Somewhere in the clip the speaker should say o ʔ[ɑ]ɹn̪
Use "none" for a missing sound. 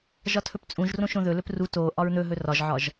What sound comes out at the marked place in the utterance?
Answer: ɒ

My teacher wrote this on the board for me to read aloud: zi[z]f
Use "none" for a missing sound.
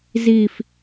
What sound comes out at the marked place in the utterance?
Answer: none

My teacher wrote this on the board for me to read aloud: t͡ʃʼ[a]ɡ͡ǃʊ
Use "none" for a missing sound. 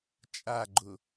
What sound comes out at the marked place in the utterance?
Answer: a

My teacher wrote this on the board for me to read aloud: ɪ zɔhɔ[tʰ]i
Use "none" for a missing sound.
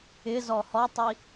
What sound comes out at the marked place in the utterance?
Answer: tˤ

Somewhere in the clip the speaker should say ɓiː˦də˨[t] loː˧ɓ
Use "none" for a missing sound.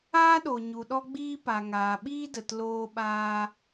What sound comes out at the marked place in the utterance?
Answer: t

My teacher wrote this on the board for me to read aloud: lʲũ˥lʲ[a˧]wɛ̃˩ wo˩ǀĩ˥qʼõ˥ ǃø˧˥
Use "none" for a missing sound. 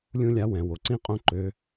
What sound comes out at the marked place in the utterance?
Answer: a˧˥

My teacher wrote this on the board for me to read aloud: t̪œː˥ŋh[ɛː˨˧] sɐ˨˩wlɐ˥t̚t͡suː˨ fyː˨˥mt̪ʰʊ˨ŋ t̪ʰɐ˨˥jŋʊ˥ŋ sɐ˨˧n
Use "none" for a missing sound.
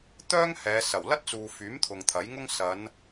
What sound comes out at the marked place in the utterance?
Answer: ɛː˨˧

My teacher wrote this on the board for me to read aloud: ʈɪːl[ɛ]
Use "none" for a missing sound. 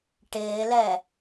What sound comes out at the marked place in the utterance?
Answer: ɛ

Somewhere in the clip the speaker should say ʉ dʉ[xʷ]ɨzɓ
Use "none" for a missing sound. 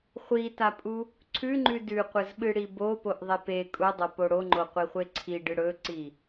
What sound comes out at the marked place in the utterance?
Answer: qʷ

